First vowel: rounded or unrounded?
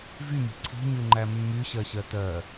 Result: rounded